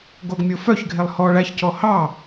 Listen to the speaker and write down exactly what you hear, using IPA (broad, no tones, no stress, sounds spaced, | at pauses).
ɡ o ɡ mʲ o f œ ç ɡʱ e lˠ h ɔ ɭ æ ç c ɔ h ɑ